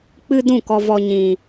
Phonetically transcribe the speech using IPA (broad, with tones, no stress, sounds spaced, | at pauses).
k͡p ɨ˦ d ũ˦˨ k ɔ˧ v ɔ˧ ɲ ĩ˧